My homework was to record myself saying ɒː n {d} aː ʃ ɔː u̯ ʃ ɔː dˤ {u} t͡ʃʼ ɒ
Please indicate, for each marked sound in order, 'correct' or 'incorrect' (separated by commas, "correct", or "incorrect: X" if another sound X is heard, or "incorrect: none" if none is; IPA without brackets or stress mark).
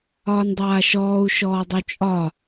incorrect: dˤ, correct